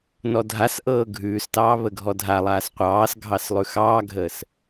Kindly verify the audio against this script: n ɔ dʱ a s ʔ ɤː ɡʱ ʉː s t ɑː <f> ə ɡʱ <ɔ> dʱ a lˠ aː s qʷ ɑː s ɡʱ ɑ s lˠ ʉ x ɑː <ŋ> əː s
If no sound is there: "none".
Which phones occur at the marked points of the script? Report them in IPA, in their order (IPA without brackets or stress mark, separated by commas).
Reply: β, ɔ, ɡʱ